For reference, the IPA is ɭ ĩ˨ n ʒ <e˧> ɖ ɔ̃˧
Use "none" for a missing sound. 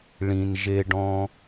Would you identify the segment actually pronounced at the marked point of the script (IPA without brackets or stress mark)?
e˧